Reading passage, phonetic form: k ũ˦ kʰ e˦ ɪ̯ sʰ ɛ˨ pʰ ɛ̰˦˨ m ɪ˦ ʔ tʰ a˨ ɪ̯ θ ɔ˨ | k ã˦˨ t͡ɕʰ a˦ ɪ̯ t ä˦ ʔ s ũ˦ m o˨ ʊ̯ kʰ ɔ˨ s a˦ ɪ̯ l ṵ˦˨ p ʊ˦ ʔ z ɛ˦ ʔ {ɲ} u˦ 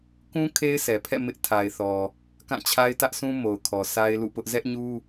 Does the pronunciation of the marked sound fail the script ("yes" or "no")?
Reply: no